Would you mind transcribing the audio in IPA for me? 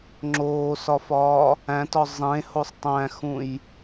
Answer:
ŋ͡ǁ oː s ɒ f ɒː | æ̃ t ɒ zˤ ẽ h o sˤ tˤ æ̃ x ũ j

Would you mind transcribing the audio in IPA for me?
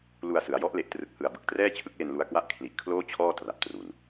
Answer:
l u˧ a̯ s ɯ˩˦ a̯ j ɔ˦˥ ʔ l e˨˩ ʔ t r ɯ˨˩ k̚ h ɯ˨˩ a̯ b ɯ˨˩ k̚ t r ɛː˥˩ t͡ɕʰ ɯ˦˥ k̚ l e˧ n l u˧ a̯ k w a˥˩ ʔ kʰ l i˨˩ ʔ kʰ l oː˥˩ t͡ɕʰ ɔː˥˩ t r a˨˩ p̚ t r u˨˩ n

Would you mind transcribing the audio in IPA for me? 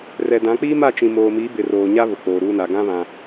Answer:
r ɛ˨ d ã˨˦ k͡p iː˦ m a˦˨ t͡ʃ ĩ˨ m oː˨ m iː˨˦ b ɪ˨ r oː˨ ɲ a˦ β ʊ˨ k͡p oː˨ ɾ uː˦ n a˨ ɡ ã˦ β ã˨

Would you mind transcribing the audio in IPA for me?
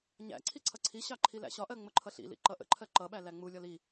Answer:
ɲ æ̰ ǀʰ i ǀʰ ʌ ǀʰ i ɕ ɑ ǃʰ i l æ̰ ɕ ɒ ʔ ɜ ŋ͡m ʊ ǃʰ ʌ ɬ ḭ l ḭ ǃ ʌ ʔ ə̰ ǃʰ ɜ ǃ ʌ ɓ æ l æ ŋ͡m u lʲ ɒ l i

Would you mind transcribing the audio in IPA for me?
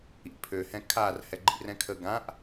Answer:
ḭ pʰ ø h ɛ̃ kʰ a r h ɛ ɡ͡ǃ ḭ r ɛ̃ kʰ ə ɡ ã ʔ

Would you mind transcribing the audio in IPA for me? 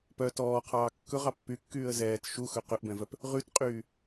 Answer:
p œ t ɔː qʰ ɑː kː ɵ ʁ ɑ pː y kː yː ə̯ z ɛː t ʃ u x ɵ q ɵ ʔ b ɛ̃ v œ p | ʁ ʉ t qʼ yː

